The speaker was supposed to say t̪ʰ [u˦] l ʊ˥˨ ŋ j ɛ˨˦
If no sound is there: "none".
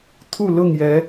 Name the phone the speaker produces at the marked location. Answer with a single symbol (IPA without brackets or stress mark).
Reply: u˥˨